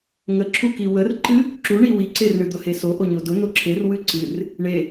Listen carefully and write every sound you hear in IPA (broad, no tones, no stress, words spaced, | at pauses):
ŋəǁʰu kiwərǃɨ | ǁuɳi wiǀer ɳɨd̪ʊheso ʔoɲodʊ n̪oǁʰer wɨǀɨr | ɳe